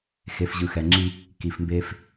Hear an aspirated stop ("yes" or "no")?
no